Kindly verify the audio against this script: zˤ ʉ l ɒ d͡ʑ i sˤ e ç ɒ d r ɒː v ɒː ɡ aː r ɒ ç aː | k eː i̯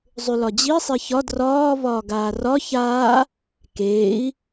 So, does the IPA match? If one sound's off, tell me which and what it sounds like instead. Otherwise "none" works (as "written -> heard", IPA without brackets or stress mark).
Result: none